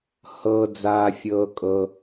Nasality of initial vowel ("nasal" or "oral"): oral